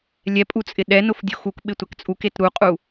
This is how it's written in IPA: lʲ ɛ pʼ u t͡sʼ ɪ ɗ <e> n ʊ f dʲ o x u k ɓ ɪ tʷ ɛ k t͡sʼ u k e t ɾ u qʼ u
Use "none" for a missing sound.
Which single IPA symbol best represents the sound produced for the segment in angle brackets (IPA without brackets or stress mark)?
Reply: ɛ